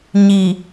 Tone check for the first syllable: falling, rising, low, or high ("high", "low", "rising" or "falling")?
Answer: low